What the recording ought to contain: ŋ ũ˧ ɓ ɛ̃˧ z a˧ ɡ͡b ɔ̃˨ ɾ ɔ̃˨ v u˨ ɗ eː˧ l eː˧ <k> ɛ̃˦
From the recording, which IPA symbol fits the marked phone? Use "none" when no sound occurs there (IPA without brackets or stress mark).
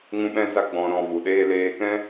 k